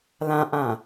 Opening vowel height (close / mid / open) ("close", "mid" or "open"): open